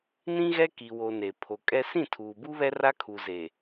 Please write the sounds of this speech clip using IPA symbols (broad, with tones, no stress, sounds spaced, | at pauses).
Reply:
n ĩ˦ ɣ ɛ˦ k i˨ w o˨ n e˨ pʰ o˨ kʼ ɛ˦ s ĩ˦˨ tʰ uː˨ b u˦ β ɛ˦ r a˦ kʰ u˨ z e˨